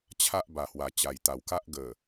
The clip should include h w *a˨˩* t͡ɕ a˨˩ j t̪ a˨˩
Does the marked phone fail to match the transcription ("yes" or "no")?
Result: no